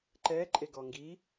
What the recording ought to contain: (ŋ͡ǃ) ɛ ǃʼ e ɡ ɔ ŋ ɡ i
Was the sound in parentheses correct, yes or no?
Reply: no